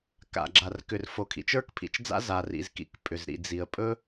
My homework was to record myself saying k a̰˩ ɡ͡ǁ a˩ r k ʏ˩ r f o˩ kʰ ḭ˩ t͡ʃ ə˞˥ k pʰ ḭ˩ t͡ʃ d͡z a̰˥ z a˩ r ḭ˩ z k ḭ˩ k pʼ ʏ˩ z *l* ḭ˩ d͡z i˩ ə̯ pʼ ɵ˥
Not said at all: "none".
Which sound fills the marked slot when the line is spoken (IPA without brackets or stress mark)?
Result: ɾ